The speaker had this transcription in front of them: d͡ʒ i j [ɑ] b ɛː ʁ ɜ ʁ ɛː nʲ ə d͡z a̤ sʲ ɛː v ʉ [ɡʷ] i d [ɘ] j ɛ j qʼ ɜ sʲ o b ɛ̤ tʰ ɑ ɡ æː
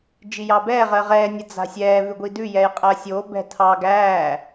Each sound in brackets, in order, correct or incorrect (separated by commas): correct, correct, incorrect